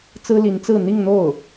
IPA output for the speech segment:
t͡s ɹ̩˥ l i˧˥ n t͡s ɹ̩˥˧ n̪ i˥˧ ŋ n̪ o˥˩ ʊ̯

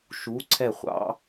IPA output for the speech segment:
ʃ u˨˦ ǀʰ ɛ˦˨ χʷ ɑ̰˦˥

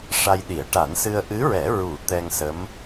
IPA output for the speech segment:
ʂ a˧ j ɗ i˨˩˦ ə̯ ʈ a˨˩˦ n s ɨ˧ ə̯ ʔ ɨ˧˥ ɹ ɛ˨˩˦ ɹ u˨˩˦ t̪ ɛ˧ ŋ s ə˧˥ m

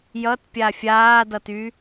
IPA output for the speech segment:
j ʌ t pʲ a fʲ aː d ʌ t y

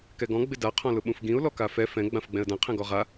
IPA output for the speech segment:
k ɛ ɡ ɔ̃ ɡ͡b ɪ d a qʰ ɔ̃ l ʊ ɓ ũ f ɡ ĩ ʊ̯ l ɔ k a f ɛ f ɛ̃ ɡ͡b ã f ɡ͡b ɛ̃ ə̯ d ã qʰ ɛ̃ ɡ ɔ ʁ a

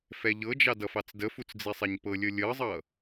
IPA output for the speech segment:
f ɛ ʎ ɤ d͡ʒ ɑ d ʌ f ɑ t͡s d ə f u t͡s d͡z i sˤ ɛ ɲ p ɤ lʲ ɤ lʲ ɤ zˤ ʌ

